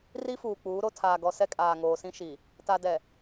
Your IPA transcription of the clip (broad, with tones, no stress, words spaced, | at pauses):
ri˦fuː˨ k͡puː˨˦ɾo˦ tʰaː˨ɡɔ˨sɛ˦ kʼaː˨ŋoː˨sĩ˦ ʃi˨ | ta˨dɛ˨